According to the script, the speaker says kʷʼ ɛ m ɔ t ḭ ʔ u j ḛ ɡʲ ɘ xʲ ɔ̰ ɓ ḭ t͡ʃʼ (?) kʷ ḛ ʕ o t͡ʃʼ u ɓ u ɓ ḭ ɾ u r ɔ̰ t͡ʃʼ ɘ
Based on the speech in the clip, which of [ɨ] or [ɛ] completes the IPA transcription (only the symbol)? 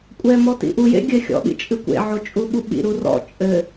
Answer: ɨ